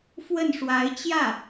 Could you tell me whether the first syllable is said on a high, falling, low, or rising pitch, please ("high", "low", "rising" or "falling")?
falling